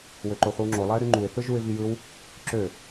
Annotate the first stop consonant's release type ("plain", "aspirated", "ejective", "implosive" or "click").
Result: click